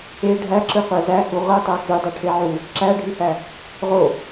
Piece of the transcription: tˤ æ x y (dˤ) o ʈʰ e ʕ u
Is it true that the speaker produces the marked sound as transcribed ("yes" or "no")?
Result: yes